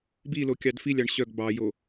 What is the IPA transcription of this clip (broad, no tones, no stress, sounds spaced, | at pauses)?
b i l o kʲ ɑ d f i lʲ ɑ ɳ ɕ œ ɡ b ɑ j o